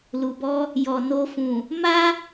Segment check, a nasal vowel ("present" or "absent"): present